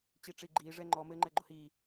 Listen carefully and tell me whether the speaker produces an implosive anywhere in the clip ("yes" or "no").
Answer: no